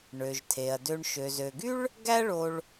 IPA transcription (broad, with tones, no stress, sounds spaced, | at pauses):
ɳ ø˩ ʒ tʰ e˩ ɐ̯ d ø˨ ɳ ʃ ø˩ z ø˩ ɡ y˥ ɭ | ɡ æ˦ ɭ o˨ ɭ